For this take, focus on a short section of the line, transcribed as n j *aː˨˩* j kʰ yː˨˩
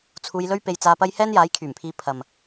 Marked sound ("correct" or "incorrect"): incorrect